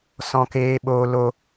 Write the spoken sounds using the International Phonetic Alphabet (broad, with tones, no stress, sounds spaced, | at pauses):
s ɔ̃˦ k eː˦ ɓ oː˦ l o˦